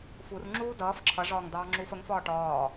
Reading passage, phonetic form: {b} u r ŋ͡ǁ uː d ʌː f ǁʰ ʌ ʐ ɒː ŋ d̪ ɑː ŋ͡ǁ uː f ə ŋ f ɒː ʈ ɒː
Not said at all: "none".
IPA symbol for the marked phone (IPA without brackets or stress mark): f